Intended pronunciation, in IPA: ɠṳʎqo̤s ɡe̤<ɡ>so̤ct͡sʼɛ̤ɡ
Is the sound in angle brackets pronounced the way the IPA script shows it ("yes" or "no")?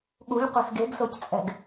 yes